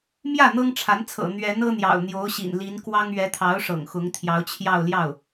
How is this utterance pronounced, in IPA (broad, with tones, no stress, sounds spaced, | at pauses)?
m j ä˥˩ n̪ ɤ˥ ŋ ʈ͡ʂʰ a˧˥ n t͡sʰ ɤ̰˨˩ n̪ ɥ ɛ˧˥ n ɤ˥ n̪ j ɑ̰˨˩ ʊ̯ n̪ j o˧˥ ʊ̯ ɕ ḭ˨˩ n l i˧˥ n k w ɑ˥ ŋ ɥ ɛ˧˥ t̪ʰ ɑ˧˥ ʊ̯ ʂ ɤ̰˨˩ ŋ x ʊ˧˥ ŋ t̪ʰ j ɑ˧˥ ʊ̯ t͡ɕʰ j ɑ˥˧ ʊ̯ l j ɑ˥˩ ʊ̯